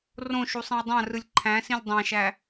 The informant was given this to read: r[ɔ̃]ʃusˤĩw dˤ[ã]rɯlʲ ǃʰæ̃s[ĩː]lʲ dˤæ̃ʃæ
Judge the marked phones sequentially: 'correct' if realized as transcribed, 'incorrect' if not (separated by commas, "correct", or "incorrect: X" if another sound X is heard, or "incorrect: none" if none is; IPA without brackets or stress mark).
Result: incorrect: õ, correct, incorrect: ĩ